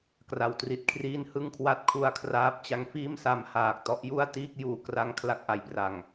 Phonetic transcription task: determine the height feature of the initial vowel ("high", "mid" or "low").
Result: low